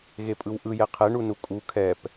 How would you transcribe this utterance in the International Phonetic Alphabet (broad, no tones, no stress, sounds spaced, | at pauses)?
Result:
ɣ e pʼ ɯ w ʔ ɯ j ɛ qʰ ɛ ɳ u n u kʼ u kʰ ɛ p